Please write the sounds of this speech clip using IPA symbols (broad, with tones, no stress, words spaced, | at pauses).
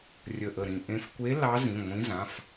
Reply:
rʲə˧˩ʔə˧˩ɾĩ˧˩ ʔẽ˧fkʷe˧˥ lɑ˧˥zĩ˩˧˩ ŋʷĩ˧˥zã˩˧˩f